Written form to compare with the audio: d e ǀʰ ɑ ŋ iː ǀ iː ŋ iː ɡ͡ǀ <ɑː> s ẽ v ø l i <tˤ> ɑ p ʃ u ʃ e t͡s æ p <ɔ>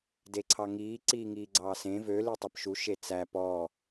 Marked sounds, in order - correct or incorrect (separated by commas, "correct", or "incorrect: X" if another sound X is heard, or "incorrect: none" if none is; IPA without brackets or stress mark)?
correct, correct, correct